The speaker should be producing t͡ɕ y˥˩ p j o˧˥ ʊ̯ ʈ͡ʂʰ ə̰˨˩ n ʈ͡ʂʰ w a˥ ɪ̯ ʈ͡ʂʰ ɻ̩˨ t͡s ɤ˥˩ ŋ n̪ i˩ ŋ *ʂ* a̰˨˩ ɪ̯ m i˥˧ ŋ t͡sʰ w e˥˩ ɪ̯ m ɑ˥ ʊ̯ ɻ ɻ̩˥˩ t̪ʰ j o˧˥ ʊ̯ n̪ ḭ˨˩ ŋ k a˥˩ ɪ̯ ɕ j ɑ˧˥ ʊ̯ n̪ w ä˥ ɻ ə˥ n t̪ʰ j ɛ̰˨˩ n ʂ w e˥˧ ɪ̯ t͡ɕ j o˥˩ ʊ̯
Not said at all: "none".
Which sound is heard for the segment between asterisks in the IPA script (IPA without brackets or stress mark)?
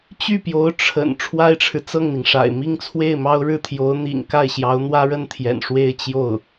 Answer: ʂ